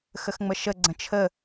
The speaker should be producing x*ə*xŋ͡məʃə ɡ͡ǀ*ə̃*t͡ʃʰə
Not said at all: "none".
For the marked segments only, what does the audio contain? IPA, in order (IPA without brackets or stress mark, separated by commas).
ə, ə̃